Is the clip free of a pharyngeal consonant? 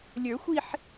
no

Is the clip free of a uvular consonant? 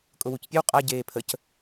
no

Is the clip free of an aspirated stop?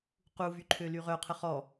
no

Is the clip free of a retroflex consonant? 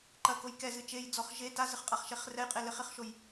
yes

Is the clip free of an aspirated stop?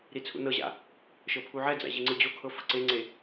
no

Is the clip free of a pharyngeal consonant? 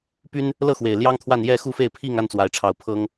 yes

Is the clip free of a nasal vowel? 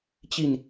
yes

